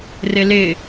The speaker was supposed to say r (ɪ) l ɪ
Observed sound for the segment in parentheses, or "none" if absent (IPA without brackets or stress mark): ɪ